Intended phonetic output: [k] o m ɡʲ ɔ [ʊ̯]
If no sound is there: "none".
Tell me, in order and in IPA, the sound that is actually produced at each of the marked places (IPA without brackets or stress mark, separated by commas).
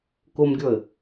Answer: k, ə̯